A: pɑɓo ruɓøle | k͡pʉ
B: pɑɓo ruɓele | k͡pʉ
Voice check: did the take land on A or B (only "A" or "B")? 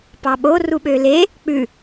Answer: A